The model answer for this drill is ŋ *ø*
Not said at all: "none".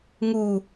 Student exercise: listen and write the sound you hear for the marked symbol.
u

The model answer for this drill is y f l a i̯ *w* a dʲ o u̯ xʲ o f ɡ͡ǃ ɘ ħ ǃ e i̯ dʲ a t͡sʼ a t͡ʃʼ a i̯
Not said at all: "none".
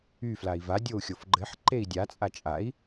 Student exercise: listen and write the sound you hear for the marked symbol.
v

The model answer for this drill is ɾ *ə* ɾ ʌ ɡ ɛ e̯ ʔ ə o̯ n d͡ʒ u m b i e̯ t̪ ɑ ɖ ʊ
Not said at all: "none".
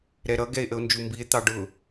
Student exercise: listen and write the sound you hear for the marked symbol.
ɛ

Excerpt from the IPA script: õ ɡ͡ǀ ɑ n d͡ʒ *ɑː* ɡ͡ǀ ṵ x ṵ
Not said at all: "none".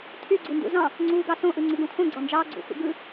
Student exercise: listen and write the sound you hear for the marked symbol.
ɑː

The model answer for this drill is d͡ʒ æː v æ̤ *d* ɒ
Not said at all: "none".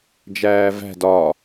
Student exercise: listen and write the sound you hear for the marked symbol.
d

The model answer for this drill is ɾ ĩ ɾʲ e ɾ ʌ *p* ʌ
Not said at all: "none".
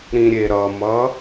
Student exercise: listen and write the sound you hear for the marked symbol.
m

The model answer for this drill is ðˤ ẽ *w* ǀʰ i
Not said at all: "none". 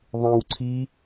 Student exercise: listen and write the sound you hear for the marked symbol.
w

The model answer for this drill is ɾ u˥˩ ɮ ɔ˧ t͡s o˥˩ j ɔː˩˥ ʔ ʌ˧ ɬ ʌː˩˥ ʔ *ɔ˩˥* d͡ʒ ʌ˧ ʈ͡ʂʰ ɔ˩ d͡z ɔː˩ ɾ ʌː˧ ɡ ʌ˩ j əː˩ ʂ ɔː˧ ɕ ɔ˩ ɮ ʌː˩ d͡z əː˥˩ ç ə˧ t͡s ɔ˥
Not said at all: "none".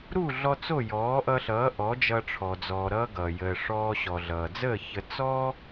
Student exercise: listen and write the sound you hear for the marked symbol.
ɔ˩˥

